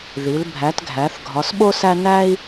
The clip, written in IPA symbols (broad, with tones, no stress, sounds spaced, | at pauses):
ð i˩˧ l bʱ æ˩˧ t ɡʱ æ˩˧ θ ɡʱ ɒ˩˧ s ɓ o˦ s æ˦ n æ˦ i̯